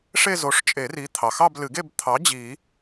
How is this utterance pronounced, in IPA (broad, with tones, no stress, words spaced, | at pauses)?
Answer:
ʂe˥˧zo˨˥ʂt͡ʃʼe˨˩˦ri˨˥ t̪ʰɑ˩xɑ˥˧blɨ˨˩˦ɡe˥˧b t̪ʰɑ˨˥ d͡ʑi˨˩˦